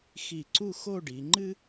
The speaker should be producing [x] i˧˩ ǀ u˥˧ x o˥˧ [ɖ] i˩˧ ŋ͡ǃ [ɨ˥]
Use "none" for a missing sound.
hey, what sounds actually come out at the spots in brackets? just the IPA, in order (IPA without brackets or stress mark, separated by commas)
x, ɖ, ɨ˥